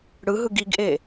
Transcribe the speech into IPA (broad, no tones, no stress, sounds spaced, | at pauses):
ɽ ɯ ɦ ɯ ɡ i ɡ ʔ e